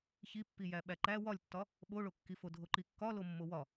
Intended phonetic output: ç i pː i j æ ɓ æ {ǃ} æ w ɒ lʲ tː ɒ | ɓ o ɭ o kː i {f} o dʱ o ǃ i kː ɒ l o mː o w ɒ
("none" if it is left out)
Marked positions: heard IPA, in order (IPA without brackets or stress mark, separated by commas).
ǃ, f